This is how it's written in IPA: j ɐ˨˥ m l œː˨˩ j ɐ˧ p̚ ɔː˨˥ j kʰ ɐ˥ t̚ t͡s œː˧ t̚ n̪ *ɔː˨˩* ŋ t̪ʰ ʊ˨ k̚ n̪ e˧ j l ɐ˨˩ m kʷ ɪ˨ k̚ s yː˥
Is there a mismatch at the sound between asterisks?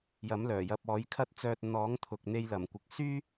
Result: yes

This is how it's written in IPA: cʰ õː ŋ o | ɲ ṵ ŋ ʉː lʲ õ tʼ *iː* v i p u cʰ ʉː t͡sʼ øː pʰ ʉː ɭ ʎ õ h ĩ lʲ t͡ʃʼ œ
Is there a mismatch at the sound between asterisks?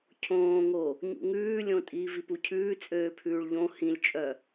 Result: no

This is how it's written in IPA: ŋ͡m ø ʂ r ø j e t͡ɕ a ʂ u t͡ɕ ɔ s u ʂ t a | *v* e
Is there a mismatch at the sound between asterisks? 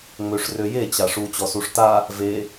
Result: no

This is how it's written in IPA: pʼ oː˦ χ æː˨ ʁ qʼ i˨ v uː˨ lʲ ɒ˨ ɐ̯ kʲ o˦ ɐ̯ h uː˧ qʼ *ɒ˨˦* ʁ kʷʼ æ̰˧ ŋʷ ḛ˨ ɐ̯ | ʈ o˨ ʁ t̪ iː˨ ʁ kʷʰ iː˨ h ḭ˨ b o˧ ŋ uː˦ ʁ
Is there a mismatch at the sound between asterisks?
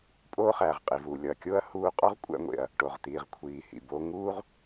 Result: yes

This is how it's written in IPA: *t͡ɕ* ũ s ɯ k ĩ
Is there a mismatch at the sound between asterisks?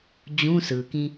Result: yes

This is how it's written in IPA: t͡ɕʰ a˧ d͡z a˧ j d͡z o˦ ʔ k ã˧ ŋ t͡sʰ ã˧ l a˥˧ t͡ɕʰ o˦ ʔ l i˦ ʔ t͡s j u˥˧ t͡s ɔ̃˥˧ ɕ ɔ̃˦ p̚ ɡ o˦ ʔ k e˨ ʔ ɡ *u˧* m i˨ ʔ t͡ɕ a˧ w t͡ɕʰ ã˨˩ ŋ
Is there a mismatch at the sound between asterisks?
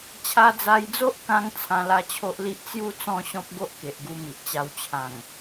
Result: no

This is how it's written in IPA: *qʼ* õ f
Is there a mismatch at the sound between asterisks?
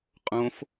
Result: no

